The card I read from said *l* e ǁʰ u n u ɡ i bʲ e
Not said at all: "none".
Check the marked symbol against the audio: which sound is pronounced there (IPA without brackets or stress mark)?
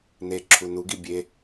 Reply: n